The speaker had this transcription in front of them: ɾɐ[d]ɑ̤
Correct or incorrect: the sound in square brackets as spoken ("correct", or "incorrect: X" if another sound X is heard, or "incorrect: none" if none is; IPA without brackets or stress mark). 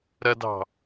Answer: correct